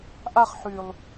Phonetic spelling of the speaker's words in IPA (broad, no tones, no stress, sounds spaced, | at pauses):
ʔ a χ ħ y lˠ